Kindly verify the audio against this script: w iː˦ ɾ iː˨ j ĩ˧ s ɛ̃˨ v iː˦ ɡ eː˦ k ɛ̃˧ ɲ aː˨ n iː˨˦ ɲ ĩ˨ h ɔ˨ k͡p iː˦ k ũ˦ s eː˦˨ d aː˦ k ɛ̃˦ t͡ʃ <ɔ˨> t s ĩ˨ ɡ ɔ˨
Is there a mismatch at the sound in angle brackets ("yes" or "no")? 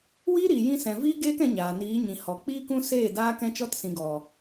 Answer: yes